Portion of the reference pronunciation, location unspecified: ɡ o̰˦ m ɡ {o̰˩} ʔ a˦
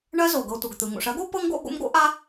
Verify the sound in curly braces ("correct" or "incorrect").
incorrect